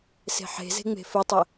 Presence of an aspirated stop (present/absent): absent